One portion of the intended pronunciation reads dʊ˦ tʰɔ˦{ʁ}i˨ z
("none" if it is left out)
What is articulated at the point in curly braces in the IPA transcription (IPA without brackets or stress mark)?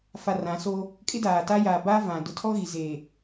ɣ